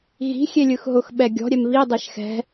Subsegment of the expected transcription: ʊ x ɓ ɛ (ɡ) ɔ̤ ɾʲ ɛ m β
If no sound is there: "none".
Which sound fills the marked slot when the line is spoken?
ɡʲ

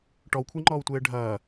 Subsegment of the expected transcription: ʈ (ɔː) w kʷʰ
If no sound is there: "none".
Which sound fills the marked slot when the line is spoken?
ɔ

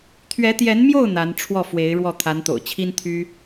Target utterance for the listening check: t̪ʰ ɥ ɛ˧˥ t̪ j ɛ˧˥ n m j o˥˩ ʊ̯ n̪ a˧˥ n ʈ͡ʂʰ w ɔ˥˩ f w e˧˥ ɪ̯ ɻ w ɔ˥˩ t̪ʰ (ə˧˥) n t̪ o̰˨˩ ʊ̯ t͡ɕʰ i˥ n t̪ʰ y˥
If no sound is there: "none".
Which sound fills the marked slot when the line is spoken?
a˧˥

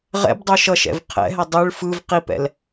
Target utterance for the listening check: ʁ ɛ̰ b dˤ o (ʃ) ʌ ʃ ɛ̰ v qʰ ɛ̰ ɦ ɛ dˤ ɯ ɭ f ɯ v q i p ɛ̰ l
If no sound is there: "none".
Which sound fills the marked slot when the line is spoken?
ʃ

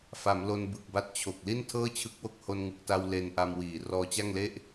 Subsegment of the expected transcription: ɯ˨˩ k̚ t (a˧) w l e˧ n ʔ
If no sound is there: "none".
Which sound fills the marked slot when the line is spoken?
a˧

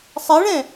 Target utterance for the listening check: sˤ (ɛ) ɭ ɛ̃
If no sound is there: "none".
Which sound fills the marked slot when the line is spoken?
ɛ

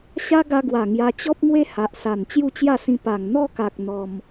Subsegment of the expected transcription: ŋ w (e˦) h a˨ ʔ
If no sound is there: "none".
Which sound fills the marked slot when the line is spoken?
e˦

